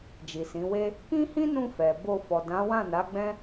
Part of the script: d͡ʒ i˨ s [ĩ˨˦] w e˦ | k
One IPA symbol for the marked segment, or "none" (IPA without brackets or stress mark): ĩ˨˦